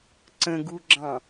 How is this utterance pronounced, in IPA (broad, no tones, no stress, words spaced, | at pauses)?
ǀə̃ɡuɡ͡ǁɑ̃